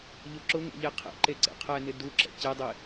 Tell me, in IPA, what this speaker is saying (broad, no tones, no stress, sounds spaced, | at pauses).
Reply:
ʎ ʊ ǁ ʊ ŋ ɛ̰ ʎ e qʰ ḛ ǃ e ǀ ḛ qʰ ɛ n ɪ d u ǁ ɛ̰ c e dˤ e